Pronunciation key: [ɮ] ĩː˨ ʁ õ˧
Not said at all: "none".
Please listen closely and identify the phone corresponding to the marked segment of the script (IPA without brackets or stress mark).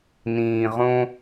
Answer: n